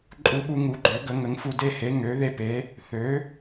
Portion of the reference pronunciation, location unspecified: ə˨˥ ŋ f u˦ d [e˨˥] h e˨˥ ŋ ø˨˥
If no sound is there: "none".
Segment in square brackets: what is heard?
e˦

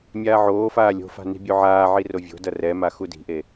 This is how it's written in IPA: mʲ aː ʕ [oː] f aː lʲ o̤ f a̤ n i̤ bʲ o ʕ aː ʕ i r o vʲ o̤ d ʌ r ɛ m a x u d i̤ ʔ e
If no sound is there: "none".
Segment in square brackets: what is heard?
oː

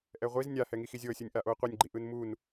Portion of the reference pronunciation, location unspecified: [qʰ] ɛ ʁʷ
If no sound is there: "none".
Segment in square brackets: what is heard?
ʔ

